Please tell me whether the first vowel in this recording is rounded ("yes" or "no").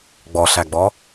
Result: yes